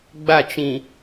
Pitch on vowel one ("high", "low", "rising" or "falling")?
falling